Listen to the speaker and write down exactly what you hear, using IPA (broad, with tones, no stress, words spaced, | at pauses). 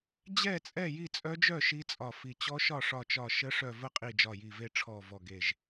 d͡ʑɛ˥˨t͡sʼɛ˥˨ ji˥˨t͡sʼœ˦˥d͡ʒœ˥˨ ʃi˦˥t͡sʼɒ˧˩fi˧˩ t͡ɕɔ˦˥ʃɒ˥˨ʂɒ˧˩t͡ʃɒ˧˩ ʃə˦˥ʂœ˧˩ və˥˨qʼi˧˩ d͡ʒɒ˧˩ji˧˩ve˥˨ʈ͡ʂʰɔ˧˩ vɔ˧˩ɡe˧˩ʒ